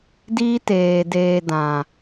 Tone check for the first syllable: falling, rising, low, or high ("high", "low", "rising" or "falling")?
high